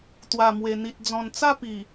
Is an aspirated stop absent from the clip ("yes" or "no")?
yes